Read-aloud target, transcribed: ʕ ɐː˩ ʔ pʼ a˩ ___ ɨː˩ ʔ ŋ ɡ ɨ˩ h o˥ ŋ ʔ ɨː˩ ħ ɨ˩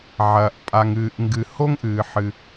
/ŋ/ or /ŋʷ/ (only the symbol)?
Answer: ŋ